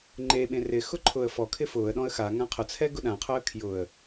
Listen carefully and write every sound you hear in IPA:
ŋ͡ǃ e ɓ ẽ r ɪ x ʊ ǃʰ ʊ ə̯ f ɔ kʰ ɪ f ʊː ə̯ ɗ ɔ̃ ə̯ x a ŋ ã qʰ ʊ t͡sʰ ɛ ɡ ʊ ɗ ã qʰ ʊ ə̯ kʰ j ʊ ə̯

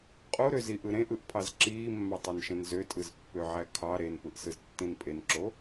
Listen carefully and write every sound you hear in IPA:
qʼ o ɾ ø z i ʔ ɯ ɾ ẽ ʔ ɯ ʔ pʰ ɑ z ǁ iː mː ɑ tˤ e n ʃ ẽ n z ø tʼ ɯ z pː ø ʕ æ kʰ ɑ ɾ e n p ɯ ʔ s ɯ z tː ĩ n pʼ e n ǁ o

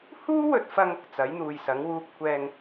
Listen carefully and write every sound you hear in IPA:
h uː˥ w ɵ˨ t̚ f ɐ˧ ŋ | t͡s ɐ˨˥ j n̪ uː˨ j s ɐ˨˥ ŋ w uː˧ p̚ kʷʰ ɛː˧ ŋ

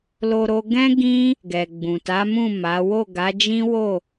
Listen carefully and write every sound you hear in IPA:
l o˧ ɾ o˧ ɡ ɛ̃˦ ɡ ĩ˦ | ɡ ɛ˨ ɡ͡b ũ˨ t a˨˦ m ũ˦˨ m a˨˦ w o˦˨ ɡ a˨˦ d͡ʒ ĩ˦ w o˦˨

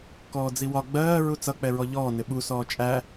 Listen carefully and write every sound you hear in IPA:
k ɔː d͡z i w ɒ ɡ͡b ɜː ɹ u t͡s ʌ k͡p ɛ ɹ ɔ ʎ ɔː n ɪ ɓ u s ɔː t͡ʃʼ æ

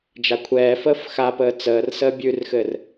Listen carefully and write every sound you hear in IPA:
d͡ʒ a kʷʰ ɛː f əː f x a p əː t͡s əː r s əː bʲ ʉ r x ɘ r

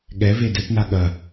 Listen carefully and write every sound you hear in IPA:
ɠ ɛ v e d ɘ p n a ɠ ɐ

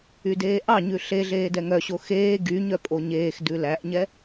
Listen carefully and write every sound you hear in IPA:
y d eː ʔ ɑ ɲ ʉ ɬ e ɮ eː d ɛ ŋ œ ɕ o x eː ɡ y ɲ œ pʼ o ɲ eː x d ʉ l æ ʔ ɲ ɛ

